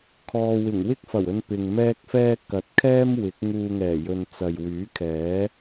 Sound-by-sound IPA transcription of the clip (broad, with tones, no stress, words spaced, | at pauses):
kʰɔː˨wɪ˨˩ŋ wɪ˥k̚fɐ˨˩wɵ˧n pɪ˨ŋmɛː˥k̚fɛː˥ kɐ˨t̚kʰɛː˥m wɪ˨˥k̚ŋuː˧ŋɛː˨˩jɵ˨n t͡sɐ˨jwyː˨˥kʰɛː˨˥